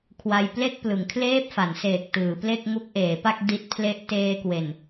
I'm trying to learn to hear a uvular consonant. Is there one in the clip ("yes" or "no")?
no